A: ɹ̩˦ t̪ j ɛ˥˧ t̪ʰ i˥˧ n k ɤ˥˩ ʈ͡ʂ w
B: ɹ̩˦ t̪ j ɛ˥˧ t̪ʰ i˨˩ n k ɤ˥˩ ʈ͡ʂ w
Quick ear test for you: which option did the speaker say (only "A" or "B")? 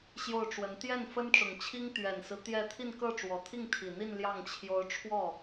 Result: A